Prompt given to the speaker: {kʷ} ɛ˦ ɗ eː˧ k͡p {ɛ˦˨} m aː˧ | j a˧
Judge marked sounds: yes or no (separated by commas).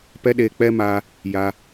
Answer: no, no